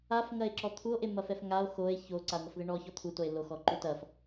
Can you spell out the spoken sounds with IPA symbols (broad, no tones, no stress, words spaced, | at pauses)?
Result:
af ŋɐe̯ǁɔt̪ʰuo̯ ʔemɐfɛfŋao̯ xoe̯ ço ǀao̯ŋɐfðeɳɔ çɔt̪ʰu toe̯lo xɔǃutɐf